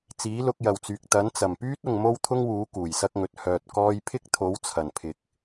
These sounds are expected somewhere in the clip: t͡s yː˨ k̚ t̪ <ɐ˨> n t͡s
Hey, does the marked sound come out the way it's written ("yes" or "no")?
no